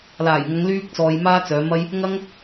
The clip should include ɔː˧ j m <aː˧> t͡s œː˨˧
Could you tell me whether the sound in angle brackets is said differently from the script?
yes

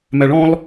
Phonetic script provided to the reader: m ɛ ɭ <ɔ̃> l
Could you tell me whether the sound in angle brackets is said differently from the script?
no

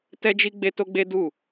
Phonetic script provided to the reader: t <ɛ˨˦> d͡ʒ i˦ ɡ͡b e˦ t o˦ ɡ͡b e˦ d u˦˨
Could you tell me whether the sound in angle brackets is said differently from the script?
yes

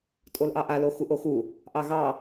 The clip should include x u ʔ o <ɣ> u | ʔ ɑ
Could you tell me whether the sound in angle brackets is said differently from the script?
yes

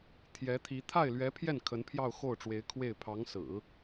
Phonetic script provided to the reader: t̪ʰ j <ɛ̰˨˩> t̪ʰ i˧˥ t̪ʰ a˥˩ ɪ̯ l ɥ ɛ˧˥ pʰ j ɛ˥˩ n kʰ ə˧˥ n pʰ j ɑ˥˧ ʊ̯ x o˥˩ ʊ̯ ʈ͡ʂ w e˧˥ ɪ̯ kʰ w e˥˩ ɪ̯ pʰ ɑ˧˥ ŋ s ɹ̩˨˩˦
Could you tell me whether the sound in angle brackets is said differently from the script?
yes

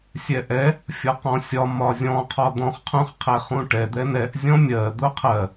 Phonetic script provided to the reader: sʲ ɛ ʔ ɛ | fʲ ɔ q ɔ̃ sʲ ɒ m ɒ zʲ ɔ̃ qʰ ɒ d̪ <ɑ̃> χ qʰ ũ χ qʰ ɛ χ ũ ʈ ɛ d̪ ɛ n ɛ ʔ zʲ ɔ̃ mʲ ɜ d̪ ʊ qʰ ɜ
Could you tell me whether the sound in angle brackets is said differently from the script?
yes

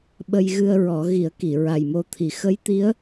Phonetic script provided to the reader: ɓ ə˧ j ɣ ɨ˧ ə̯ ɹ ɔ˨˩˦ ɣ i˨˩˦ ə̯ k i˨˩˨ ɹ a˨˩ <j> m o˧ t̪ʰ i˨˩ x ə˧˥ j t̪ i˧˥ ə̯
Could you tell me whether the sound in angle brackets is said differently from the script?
no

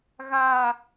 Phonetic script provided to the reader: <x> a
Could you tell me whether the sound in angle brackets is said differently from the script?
yes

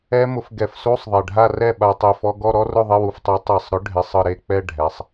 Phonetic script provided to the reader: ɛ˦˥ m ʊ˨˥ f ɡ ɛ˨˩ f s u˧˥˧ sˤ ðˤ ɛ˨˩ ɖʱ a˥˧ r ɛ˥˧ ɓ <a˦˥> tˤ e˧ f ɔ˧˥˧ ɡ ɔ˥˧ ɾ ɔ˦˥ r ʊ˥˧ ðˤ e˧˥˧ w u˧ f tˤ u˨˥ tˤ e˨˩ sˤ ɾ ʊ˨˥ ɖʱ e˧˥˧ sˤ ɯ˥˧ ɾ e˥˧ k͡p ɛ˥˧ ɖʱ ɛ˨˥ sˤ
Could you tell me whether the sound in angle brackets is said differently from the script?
yes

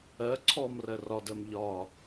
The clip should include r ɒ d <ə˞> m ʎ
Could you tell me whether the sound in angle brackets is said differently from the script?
yes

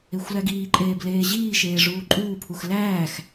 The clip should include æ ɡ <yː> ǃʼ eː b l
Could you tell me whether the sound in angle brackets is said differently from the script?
yes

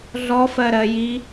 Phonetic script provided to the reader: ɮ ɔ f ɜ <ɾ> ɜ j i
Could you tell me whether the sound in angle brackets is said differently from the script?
no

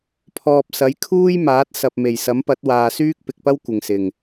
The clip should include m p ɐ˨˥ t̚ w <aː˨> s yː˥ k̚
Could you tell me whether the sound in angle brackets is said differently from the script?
no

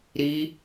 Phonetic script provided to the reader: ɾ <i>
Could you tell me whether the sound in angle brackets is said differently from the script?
no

